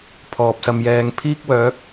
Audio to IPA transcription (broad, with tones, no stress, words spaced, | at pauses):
pʰɔː˨p̚sɐ˧mjɛː˧ŋ pʰiː˥k̚wœː˨˥k̚